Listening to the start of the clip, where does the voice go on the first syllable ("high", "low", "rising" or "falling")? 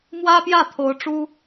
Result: high